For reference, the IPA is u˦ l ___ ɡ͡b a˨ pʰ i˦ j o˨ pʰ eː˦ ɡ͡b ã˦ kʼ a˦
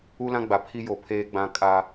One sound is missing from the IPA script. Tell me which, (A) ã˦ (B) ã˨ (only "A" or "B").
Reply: A